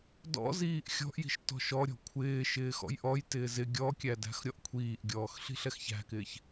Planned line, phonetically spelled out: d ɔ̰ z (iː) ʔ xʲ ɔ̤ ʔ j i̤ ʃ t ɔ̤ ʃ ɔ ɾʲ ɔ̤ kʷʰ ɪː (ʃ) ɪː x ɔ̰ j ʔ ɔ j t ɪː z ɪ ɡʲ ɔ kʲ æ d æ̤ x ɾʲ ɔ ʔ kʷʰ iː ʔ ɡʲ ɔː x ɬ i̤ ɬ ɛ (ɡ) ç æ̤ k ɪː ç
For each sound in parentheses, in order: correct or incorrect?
correct, correct, incorrect: x

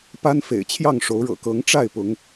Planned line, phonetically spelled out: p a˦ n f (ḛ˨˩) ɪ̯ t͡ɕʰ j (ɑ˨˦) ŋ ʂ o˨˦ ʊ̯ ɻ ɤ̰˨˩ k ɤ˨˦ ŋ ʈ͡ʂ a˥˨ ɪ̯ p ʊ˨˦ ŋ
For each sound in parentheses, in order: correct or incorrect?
correct, incorrect: ɑ˥˨

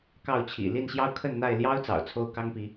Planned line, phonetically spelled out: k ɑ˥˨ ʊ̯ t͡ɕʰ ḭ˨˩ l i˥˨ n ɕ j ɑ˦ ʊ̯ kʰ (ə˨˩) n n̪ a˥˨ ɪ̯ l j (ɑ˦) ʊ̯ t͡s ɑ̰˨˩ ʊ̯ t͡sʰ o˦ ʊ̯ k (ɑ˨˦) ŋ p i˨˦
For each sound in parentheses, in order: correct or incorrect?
incorrect: ə˥˨, correct, incorrect: ɑ˦

